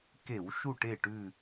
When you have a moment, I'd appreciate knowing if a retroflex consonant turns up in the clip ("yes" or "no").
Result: yes